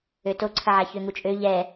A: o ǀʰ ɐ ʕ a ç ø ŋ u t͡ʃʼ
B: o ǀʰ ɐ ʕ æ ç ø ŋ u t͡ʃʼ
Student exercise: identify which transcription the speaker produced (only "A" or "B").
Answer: A